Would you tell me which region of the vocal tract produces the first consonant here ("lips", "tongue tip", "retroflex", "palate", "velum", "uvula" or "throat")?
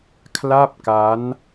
velum